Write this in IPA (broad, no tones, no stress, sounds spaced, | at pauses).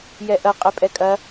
j ɛ ʔ ɐ qʼ e pʼ ɛ kʼ ɐ